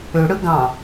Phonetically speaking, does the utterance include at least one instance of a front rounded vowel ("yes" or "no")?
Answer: yes